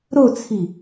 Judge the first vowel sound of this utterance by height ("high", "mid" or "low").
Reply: mid